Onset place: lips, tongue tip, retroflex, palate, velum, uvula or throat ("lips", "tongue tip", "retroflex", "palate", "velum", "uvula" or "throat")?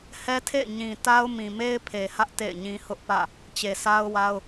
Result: throat